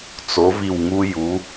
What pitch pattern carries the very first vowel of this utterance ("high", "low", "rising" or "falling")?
rising